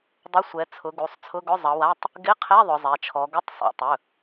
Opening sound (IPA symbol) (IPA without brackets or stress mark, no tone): dˤ